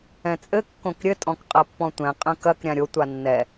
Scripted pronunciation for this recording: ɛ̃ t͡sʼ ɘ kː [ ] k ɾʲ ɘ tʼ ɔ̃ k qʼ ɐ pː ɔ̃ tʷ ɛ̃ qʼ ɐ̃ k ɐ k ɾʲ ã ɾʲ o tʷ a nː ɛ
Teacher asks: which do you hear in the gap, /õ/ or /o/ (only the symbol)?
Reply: õ